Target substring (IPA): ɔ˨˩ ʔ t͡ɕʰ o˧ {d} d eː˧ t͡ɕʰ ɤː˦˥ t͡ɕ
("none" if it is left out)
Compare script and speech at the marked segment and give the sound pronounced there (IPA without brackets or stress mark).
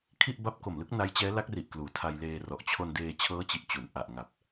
n